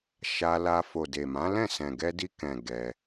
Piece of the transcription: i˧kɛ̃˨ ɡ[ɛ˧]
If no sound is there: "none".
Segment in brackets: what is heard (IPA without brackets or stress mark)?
ɛ˧